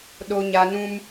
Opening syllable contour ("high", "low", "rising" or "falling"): high